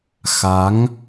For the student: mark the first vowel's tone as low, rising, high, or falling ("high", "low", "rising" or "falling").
rising